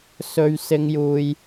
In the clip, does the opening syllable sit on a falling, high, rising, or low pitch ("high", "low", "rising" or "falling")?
high